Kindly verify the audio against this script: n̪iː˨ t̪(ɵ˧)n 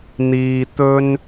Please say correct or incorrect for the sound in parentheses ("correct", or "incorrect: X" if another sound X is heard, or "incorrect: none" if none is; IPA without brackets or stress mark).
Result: correct